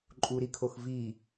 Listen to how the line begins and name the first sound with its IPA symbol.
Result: ǃʼ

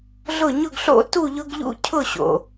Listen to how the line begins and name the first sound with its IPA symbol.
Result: ɮ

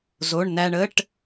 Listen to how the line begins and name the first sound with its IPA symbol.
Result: z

